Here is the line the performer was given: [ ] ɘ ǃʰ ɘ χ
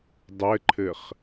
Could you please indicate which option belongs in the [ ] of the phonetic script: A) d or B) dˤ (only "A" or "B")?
B